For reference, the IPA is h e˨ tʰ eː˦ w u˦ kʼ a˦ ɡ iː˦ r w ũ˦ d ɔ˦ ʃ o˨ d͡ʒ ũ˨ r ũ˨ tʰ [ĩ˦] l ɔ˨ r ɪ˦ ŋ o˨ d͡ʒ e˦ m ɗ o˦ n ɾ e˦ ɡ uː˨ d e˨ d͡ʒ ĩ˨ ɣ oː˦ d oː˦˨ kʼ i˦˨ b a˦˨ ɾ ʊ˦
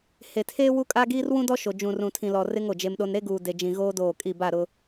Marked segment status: incorrect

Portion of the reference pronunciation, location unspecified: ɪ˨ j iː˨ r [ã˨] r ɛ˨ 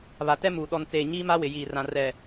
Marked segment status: correct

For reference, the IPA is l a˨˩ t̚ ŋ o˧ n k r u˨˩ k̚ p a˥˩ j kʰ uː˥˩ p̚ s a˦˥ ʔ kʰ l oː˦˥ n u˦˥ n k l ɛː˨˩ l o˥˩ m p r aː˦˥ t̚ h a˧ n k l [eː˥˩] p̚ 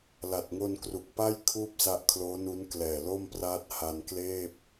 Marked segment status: correct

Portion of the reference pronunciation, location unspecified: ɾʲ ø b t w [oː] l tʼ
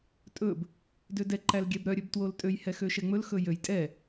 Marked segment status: incorrect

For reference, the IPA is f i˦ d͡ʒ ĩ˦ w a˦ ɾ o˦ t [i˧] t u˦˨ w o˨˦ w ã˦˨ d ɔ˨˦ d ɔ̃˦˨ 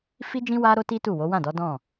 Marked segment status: incorrect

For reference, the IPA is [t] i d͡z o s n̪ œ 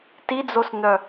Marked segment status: correct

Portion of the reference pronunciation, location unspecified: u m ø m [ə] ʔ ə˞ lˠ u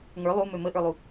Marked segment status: correct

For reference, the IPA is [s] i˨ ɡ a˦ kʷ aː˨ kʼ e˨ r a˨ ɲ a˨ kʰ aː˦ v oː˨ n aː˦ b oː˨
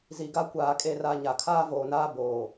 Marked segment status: incorrect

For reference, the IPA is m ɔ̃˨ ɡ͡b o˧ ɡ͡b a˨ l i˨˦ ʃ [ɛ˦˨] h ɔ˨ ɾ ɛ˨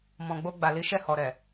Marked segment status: correct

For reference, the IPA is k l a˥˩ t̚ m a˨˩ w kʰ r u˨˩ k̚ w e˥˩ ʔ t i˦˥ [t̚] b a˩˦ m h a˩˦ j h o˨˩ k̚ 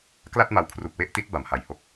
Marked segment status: correct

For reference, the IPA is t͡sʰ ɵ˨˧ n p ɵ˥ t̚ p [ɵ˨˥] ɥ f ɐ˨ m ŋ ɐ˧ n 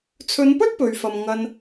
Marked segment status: incorrect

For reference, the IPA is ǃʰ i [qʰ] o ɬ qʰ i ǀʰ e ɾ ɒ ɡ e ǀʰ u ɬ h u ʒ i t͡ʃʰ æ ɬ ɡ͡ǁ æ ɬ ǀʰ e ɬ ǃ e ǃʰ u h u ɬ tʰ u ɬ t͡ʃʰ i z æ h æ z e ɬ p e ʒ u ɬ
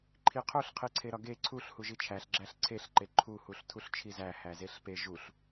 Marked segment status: correct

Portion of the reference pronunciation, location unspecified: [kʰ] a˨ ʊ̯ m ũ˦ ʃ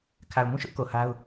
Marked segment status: correct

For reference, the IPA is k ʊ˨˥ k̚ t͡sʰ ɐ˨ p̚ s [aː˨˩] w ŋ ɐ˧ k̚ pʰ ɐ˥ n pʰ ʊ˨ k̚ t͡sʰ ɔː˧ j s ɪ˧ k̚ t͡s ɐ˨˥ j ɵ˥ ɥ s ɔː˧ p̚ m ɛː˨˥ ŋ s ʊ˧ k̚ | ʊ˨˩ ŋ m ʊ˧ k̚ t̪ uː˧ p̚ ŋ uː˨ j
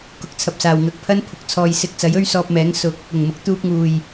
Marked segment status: incorrect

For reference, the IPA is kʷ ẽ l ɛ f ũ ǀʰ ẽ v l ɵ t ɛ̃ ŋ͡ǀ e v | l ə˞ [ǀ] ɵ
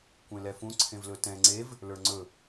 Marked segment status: incorrect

